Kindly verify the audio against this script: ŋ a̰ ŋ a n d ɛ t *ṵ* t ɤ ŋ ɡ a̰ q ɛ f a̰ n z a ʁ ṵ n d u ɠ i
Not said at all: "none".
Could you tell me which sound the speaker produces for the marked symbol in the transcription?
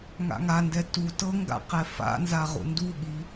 u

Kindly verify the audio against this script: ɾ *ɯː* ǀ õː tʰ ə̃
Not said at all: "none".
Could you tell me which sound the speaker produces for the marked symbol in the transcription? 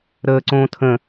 əː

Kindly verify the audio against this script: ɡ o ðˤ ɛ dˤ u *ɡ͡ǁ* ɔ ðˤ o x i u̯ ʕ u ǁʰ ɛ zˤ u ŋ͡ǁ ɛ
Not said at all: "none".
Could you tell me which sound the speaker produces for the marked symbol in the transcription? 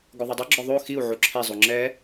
ɡ͡ǁ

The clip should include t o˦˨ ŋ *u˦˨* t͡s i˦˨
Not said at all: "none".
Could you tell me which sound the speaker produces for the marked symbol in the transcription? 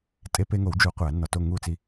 u˦˨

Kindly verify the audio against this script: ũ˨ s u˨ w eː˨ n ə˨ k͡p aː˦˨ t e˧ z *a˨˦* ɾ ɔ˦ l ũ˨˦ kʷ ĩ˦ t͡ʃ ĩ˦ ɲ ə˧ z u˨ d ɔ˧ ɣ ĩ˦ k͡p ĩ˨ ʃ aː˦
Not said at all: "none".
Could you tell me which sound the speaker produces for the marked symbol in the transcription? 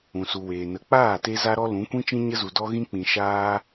a˦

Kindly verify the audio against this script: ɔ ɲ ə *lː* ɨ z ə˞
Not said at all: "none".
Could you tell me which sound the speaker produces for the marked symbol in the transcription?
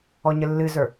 lː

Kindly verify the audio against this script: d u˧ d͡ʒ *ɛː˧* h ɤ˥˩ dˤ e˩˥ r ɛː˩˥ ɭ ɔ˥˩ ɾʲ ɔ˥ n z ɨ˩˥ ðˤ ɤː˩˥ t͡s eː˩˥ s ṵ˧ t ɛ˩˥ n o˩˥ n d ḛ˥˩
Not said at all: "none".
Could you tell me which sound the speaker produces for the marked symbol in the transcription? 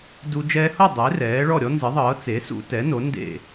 ɛː˧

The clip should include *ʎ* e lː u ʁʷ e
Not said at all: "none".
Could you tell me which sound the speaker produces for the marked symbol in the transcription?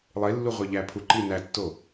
lˠ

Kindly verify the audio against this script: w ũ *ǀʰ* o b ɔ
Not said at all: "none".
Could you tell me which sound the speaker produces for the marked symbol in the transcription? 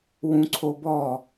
ǀʰ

